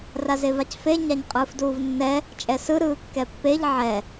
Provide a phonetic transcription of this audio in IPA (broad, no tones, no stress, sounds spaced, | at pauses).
r a z e v a c f e ɲ a ɲ qʼ ɯː f d uː v nː ɛ | t͡ʃʼ ɛ s ɯ ɾ ɯː kː ɛ pː e ʎ ʕ ɛ